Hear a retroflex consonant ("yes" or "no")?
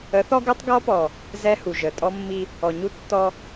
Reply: no